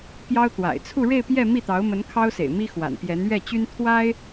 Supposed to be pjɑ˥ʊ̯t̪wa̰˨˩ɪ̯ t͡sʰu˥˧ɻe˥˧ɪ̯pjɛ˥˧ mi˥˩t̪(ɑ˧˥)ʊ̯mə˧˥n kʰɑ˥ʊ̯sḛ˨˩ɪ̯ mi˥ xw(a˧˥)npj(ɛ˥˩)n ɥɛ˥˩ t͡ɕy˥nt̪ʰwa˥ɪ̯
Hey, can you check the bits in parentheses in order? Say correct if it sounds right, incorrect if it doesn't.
correct, incorrect: a̰˨˩, incorrect: ɛ˧˥

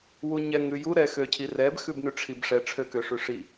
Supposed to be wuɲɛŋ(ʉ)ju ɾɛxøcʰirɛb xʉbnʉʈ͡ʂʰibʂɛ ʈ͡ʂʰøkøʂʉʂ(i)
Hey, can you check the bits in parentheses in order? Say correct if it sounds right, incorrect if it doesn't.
correct, correct

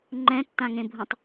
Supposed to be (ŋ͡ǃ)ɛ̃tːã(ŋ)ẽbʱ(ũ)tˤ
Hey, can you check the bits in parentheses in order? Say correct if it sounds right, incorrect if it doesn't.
correct, correct, correct

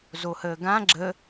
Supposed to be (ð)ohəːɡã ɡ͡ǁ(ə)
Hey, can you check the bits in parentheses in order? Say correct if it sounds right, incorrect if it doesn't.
incorrect: z, correct

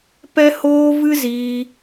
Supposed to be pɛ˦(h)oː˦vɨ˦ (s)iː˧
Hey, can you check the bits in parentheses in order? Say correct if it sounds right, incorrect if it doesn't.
correct, incorrect: z

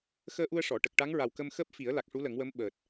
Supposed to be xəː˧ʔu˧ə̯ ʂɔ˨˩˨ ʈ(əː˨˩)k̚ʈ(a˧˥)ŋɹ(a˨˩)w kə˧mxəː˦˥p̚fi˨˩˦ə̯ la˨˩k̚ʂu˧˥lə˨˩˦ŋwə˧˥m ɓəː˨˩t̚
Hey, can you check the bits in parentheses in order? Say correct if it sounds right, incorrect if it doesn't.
incorrect: ə˨˩, correct, correct

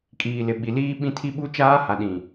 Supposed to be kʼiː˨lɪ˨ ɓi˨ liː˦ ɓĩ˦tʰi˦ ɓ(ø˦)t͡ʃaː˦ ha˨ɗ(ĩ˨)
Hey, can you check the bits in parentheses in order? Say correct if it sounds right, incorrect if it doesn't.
incorrect: u˦, correct

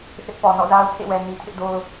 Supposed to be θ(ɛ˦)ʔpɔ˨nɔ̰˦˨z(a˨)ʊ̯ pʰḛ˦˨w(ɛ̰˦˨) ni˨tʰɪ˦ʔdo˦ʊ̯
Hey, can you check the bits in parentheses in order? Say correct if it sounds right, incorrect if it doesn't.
incorrect: ɪ˦, incorrect: a˦, incorrect: ɛ˨

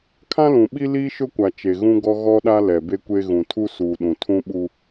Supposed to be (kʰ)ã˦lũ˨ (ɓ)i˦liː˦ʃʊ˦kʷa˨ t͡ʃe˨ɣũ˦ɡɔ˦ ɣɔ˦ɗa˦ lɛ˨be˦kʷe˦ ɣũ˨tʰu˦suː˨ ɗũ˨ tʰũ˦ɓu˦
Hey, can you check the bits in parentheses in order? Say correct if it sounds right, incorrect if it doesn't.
correct, correct

